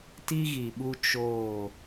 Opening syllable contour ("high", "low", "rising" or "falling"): high